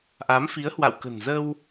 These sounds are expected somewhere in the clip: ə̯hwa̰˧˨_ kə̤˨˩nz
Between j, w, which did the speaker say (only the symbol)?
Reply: w